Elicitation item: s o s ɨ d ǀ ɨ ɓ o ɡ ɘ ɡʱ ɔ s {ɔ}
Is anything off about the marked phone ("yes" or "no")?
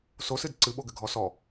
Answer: no